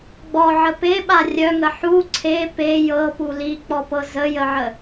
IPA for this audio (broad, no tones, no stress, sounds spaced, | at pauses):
ɡ͡b ɔ ʕ ə p e ɓ a rʲ œ ŋ ə ħ u ǀʰ e p e j ɤ p u l i k͡p ɔ p ɤ z ə j ə ʕ ə